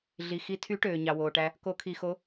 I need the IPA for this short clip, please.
ɮi˨ xi˧˥ tʰy˧˥ ʈøː˨ɲɑ˨woː˨ʈæ˧˥ | ko˧˥kʰi˨xo˧˥

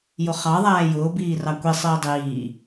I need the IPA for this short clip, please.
jʊχɑ ðˤæːjʊː biːrɑkʷi sˤiːdˤiː

